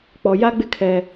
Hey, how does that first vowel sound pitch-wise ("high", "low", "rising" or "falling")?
low